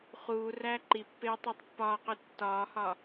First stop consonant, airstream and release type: click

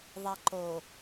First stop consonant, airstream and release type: click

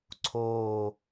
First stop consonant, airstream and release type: click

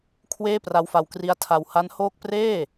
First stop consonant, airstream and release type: aspirated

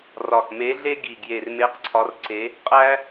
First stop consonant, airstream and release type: plain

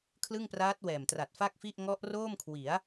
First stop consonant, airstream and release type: aspirated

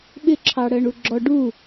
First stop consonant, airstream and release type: implosive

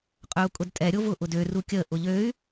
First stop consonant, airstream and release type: ejective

